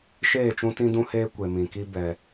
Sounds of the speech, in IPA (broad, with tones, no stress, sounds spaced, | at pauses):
ʃ eː˦˨ t͡ʃ ũ˦ t ĩ˦ d ũ˦ h eː˦ kʷ e˨ m ĩ˨ k i˦ b ɛ˦